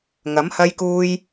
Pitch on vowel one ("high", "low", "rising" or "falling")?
rising